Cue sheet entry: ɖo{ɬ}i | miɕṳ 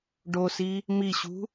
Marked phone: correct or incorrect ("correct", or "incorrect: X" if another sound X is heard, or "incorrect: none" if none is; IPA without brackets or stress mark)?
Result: incorrect: s